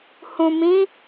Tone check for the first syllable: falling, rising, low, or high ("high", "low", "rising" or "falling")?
low